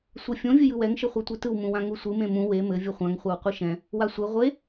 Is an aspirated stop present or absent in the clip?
absent